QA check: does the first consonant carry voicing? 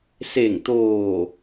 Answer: no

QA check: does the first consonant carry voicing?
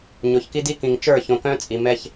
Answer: yes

